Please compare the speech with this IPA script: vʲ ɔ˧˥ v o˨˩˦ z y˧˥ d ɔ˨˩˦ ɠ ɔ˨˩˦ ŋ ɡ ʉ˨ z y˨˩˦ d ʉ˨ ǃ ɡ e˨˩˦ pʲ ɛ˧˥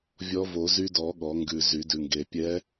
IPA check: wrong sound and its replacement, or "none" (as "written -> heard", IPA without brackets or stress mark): ǃ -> ŋ